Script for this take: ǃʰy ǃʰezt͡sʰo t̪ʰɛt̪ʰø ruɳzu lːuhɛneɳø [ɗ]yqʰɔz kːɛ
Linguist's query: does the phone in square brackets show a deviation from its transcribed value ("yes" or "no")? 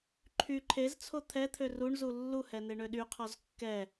no